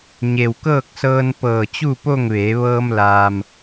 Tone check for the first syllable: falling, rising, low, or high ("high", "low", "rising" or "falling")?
low